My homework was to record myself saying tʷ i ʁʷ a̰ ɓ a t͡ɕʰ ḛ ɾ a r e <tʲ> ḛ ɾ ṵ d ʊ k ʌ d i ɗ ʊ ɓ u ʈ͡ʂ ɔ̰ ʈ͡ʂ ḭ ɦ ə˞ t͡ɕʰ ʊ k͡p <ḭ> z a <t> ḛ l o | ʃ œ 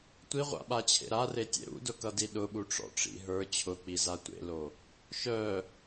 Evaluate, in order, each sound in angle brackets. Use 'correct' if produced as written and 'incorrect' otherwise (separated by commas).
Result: correct, incorrect, incorrect